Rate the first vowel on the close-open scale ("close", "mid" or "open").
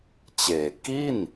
mid